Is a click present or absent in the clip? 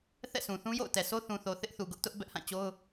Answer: absent